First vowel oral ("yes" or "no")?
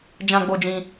no